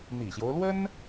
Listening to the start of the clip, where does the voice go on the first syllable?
low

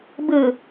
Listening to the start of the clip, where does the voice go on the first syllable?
low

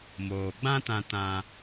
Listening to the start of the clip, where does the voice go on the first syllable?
low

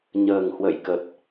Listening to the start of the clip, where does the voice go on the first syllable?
low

